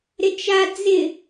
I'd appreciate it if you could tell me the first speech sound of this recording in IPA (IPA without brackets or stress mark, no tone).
ɾ